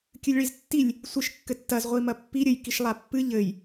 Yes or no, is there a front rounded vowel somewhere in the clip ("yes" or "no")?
no